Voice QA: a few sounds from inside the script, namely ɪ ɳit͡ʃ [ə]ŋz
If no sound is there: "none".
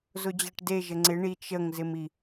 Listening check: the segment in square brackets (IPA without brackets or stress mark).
ə